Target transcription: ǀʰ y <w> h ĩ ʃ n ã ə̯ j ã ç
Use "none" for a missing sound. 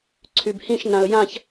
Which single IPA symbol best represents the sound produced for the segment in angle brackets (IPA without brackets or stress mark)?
b